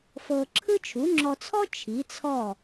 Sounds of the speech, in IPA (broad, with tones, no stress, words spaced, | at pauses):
fɤ˧ǁʰɯ˥ t͡ʃʰu˩˥ŋ͡ǁɔ˧t͡sʰɔ˥ t͡ʃʰi˩˥t͡sʰɔ˥˩